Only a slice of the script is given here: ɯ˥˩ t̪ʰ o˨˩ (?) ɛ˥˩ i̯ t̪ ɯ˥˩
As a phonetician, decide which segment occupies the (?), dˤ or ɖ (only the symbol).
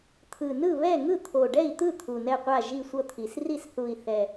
ɖ